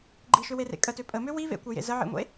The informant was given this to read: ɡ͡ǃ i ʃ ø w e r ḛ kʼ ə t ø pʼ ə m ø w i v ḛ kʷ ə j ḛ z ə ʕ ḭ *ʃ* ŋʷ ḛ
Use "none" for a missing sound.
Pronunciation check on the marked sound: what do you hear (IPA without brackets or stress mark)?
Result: none